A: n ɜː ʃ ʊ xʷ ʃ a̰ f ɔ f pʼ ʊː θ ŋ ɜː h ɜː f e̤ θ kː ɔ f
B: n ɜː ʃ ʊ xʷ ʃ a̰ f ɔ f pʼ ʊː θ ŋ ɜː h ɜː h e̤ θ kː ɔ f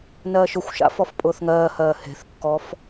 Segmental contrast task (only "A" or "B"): B